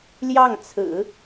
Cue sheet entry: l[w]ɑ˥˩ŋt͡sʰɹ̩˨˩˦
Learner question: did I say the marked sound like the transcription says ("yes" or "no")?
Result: no